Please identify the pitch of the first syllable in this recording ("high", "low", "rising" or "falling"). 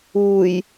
low